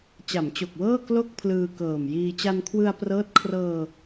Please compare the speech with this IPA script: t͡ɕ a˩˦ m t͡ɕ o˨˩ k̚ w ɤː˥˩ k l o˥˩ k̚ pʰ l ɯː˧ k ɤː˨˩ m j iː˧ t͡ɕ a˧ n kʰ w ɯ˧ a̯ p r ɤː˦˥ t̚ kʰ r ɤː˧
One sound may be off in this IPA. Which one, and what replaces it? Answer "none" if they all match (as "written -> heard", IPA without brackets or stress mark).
none